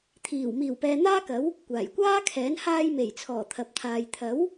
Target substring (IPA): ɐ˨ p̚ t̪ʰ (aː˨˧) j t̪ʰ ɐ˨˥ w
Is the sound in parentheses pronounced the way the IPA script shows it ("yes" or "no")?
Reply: no